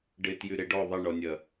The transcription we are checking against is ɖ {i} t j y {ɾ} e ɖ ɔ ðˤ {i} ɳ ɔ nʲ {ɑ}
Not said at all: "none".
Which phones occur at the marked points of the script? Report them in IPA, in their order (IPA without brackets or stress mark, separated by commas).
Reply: ɪ, ɾ, ɪ, ɐ